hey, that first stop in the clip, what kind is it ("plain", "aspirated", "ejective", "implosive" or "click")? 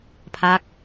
aspirated